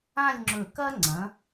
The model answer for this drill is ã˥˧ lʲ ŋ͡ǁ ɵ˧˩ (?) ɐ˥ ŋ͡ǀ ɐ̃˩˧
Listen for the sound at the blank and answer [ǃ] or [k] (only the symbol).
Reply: k